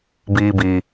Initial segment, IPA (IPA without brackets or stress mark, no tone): b